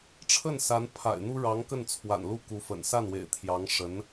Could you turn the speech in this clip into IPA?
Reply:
ʈ͡ʂʰ ə˥˩ n s a˧˥ n pʰ a̰˨˩ ɪ̯ n̪ u˥ ɻ ɑ˧˥ ŋ k ə˥˩ n t͡sʰ w a̰˨˩ n l u˥˩ k u˧˥ f ə̰˨˩ n s a˥˩ n w ḛ˨˩ ɪ̯ t̪ʰ j ɑ˧˥ ŋ ʂ ə˧˥ n

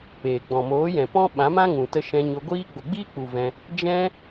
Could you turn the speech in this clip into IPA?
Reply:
p eː˨ ɡ͡b ɔ̃˨ m oː˨˦ j ɛ̃˨ p ɔ̃˦ ɓ ã˨˦ m ã˦ ŋ ũ˨ t ə˧ ʃ ɛ̃˧ ɲ o˧ ɡʷ iː˦ ɡ͡b o˨ ɡ͡b iː˦ k͡p u˨ v ɛ̃˧ | d͡ʒ ɛ̃˦

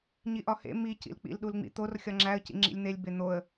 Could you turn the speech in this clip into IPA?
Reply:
ɲ i ʔ ɒ h ḛ m i c ḭ l k͡p ḭ l ɗ u l ŋ͡m ḭ t̪ o r xʲ ɒ ŋ͡ǁ æ ə̯ c ḭ ŋ͡ǁ ḭ lʲ n̪ e lʲ b e n̪ o ə̯

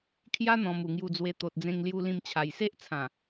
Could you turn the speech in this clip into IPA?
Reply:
kʰ j a˦ n̪ ɔ̃˨˩ m u˨˩ ŋ j u˧ d͡z w e˧ t̪ o˨ t̚ d͡z ẽ˧ ŋ l j u˧ l ĩ˧ m t͡ɕʰ a˨˩ j s e˦ ʔ t͡sʰ ã˨˩

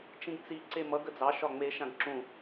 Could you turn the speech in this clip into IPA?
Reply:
t͡ʃ ĩ ɡ t͡s i ǀ e m ʌ ɡ ə d͡z ɑ ʃ ɒ ŋ͡m e ʃ ã ɡ ǁ ũ

